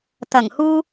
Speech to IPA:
t̪ ɐ˨˩ ŋ h uː˧

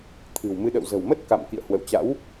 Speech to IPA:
t̪ʰ ɨ̤˨˩ w m ɨ˨˦ ɗ ə̰˧˨ w z ə̤˨˩ w m ə˦˥ t̚ k a̰˧˨ m k ḭ˧˨ ə̯ h w ə̰˧˨ w t͡ɕ a̰˧˥ w

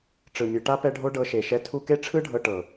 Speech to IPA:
ʈ͡ʂ ɯ˨ mʲ ɯ˨ ʈ a˦ p ɛ˦ ɖʱ o˦ ɖ ɤ˧ ʃ e˨ ʃ ɛ˧ tʰ u˧ k e˦ ʈ͡ʂʰ ɯ˦ ɖʱ ɤ˧ ʈ ɤ˨

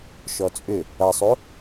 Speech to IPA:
ʃ ɔ t͡sʼ ʏ | ɐ sˤ o

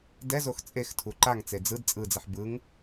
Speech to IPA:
d ɛ z o x t͡sʼ e x tʰ u ǃ a ŋ t͡s e d͡z ɯ d t͡sʼ ɯ d͡z ɛ ħ b ɯ ŋ

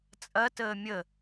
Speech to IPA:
t͡sʼ ɐ t əː mʲ ə

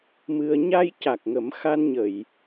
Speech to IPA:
m ɨ˧ ə̯ ɲ a˧ j c a˨˩ k̚ ŋ ə˨˩˦ m x a˧ n ɲ ə˨˩˨ j

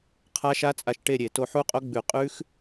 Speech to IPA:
qʰ a˦˥ ʃ a˦˥ t͡sʼ a˧ ʃ ʈ e˥˨ ɾʲ e˧˩˧ t o˧ ħ u˦˥ qʼ o˦˥ ɡ͡b ʉ˧˩˧ qʼ ʉ˦˥ x

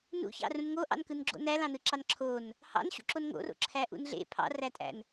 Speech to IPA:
n ṵ ç ɑ̰ r ũ n ŋ o ʔ ɑ̰ n k ɯ n ɡ͡ǁ o̰ n æ l ɑ̃ n ɯ ǁ ɑ n ǁʰ o n | h ɑ̰ n ɕ ṵ ǁ o n ŋ o̰ r o̰ ǁʰ æ ʔ ṵ n ɮ ḛ pʰ ɑ̰ r æ tʼ æ̰ n

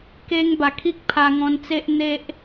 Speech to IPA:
k e˧ ŋ b a˨˩ kʰ i˦ k̚ pʰ a˧ ŋ ɔ̃˧ n t͡s e˦ ʔ n̪ e˦ ʔ

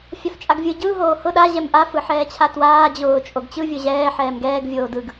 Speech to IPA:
fʲ a f t͡ʃʼ a ɡ vʲ ɯ ɟ ɯ ɦ oː h ʊ ɗ a ʑ ɛ m ʔ a f ɯ ħ ɛː t͡ɕʰ a t w aː d͡ʑ ʊː t͡ʃʼ o ɡ t͡ɕ ɯ vʲ ʊ ʑ ɛː ħ ɛː m ɡ ɛː ɡ vʲ oː d ɯ ɡ

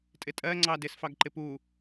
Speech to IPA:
tʼ ɪ tʼ ɜ ŋ͡ǀ ɑ d ɪ s f ɑ ɡ ǃ ɪ p u

